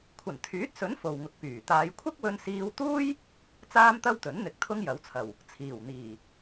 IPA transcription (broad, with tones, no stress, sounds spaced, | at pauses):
kʷʰ ɐ˨˩ n t̪ʰ yː˨˥ t̚ s ɵ˨˥ n f o˨ w ŋ ʊ˨˥ k̚ p yː˨˩ t̪ aː˨˧ j kʷʰ ɐ˥ k̚ w ɵ˧ n s iː˧ w t̪ uː˥ j | t͡s aː˥ m t̪ ɐ˥ w t̪ ɵ˨˥ n n̪ ɪ˧ k̚ t̪ʰ ʊ˥ ŋ j ɐ˨˥ w t͡sʰ ɐ˨˩ w | t͡sʰ iː˨˩ w n̪ iː˨˩